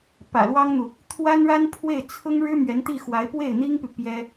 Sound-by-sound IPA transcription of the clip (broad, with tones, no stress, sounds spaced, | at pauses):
p ä̰˨˩ l w ɑ˥ ŋ n̪ u˨ | t̪ʰ w a˥ n ɻ a˥ n pʰ w e˥˩ ɪ̯ t͡sʰ ʊ˥ ŋ ɻ ɻ̩˥ m ɥ ɛ˧˥ n t̪ i˥˩ x w a˧˥ ɪ̯ p w e˥˩ ɪ̯ n̪ i˥ ŋ p y˨ p j ɛ˥